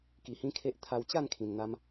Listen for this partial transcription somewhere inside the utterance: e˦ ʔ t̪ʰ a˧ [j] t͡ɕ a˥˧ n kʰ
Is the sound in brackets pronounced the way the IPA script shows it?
no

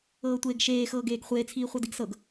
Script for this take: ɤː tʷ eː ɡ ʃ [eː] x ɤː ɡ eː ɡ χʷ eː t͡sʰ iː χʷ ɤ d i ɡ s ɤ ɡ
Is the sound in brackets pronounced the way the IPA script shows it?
yes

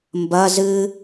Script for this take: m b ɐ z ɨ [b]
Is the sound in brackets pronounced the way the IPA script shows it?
no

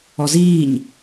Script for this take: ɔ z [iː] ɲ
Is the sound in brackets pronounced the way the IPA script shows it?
yes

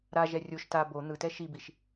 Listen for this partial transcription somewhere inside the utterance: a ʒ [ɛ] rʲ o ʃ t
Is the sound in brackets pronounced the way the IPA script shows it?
yes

